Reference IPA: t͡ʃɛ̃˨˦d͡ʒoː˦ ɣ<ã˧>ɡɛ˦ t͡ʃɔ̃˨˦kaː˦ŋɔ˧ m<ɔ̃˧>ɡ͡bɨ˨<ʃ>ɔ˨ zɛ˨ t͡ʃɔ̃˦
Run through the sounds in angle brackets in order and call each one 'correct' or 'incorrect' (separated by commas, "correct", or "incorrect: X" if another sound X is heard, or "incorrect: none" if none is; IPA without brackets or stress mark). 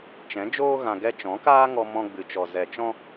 correct, correct, incorrect: t͡ʃ